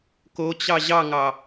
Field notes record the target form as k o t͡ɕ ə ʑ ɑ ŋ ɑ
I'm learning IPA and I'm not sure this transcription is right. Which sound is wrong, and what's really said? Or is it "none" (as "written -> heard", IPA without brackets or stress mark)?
ə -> ɑ